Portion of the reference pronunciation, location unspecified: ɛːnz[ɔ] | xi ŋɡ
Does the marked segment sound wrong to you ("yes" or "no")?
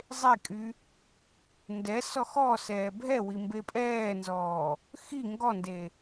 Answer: yes